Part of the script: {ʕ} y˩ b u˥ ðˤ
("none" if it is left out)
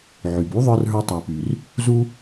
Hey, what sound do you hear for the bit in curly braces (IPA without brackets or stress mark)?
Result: ʕ